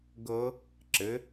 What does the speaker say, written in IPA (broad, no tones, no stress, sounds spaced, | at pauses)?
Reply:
ɡ ɤ | ǁ ɘ